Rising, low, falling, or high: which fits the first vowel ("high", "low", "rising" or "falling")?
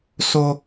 high